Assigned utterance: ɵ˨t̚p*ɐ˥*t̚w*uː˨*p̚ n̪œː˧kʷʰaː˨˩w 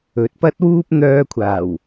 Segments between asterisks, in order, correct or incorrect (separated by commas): correct, incorrect